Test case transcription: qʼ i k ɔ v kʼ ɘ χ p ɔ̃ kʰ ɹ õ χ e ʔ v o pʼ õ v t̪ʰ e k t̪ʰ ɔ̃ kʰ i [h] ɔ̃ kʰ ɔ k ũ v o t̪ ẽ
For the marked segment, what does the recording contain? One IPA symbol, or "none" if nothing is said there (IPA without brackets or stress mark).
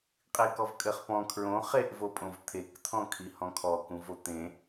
h